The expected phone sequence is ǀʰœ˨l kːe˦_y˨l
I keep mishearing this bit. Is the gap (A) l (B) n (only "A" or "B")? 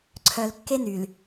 B